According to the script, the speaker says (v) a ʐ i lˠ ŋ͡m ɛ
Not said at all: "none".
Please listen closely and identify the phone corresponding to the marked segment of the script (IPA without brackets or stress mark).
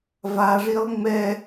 v